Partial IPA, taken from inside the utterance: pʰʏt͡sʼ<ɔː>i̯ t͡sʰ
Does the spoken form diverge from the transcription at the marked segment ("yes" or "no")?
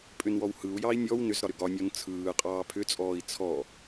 no